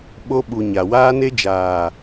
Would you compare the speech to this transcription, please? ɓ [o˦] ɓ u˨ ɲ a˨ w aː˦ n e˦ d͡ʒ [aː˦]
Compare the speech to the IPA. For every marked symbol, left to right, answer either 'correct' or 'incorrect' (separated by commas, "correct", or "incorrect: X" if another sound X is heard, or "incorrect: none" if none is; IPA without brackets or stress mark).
incorrect: o˧, incorrect: aː˨